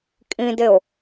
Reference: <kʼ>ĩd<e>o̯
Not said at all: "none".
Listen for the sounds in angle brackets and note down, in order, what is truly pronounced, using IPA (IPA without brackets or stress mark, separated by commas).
kʼ, e